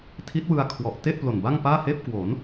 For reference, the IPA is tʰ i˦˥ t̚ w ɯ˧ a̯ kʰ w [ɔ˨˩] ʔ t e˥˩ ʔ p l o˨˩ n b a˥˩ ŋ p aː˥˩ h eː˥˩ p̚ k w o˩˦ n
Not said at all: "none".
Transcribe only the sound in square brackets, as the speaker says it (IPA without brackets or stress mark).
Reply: ɔ˨˩